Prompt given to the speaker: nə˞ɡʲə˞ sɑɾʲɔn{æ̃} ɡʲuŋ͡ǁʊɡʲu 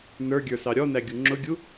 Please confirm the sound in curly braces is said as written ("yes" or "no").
no